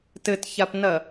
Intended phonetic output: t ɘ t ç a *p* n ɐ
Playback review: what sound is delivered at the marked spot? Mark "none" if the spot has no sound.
p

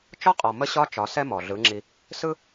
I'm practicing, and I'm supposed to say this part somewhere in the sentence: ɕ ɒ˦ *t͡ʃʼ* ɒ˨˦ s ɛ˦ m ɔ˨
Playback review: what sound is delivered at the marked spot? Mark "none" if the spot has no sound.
t͡ʃ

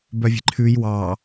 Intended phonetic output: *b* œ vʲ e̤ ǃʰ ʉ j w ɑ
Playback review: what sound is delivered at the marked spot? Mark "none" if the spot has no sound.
b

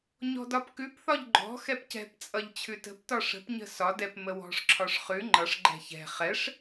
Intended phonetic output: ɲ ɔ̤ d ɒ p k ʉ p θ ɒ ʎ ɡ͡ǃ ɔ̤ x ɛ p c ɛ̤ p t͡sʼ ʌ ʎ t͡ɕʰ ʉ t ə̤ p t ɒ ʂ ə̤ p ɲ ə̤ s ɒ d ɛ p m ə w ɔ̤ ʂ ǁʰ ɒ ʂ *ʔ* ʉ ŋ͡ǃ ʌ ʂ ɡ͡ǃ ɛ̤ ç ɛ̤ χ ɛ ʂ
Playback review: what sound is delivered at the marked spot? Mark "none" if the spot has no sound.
χ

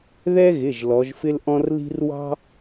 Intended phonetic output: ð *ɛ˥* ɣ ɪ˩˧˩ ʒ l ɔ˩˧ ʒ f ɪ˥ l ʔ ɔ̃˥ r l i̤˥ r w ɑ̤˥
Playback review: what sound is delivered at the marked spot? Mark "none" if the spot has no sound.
ɛ˥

